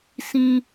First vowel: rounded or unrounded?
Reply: unrounded